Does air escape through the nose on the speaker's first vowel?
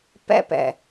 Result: no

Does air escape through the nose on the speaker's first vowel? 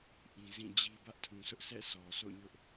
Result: yes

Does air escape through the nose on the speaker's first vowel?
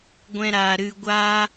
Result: yes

